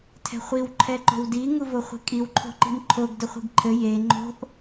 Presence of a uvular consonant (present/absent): present